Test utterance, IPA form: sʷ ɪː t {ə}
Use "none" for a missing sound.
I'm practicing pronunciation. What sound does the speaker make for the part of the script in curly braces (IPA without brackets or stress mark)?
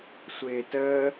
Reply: ə